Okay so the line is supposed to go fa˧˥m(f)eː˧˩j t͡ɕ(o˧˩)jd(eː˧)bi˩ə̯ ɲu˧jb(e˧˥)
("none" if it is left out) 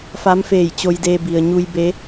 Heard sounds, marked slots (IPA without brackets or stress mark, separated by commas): f, o˧, eː˧, e˧˥